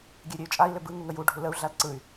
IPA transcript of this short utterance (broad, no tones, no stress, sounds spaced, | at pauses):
ɡʲ ø ɾʲ ø y̯ t͡ʃʼ a i̯ l ʏ b ɯ ŋ u ŋ ə j u ɖʱ u l ə u̯ ɮ a l ǀ ɯ y̯